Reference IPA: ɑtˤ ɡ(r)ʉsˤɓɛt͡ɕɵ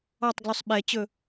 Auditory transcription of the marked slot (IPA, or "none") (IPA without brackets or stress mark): l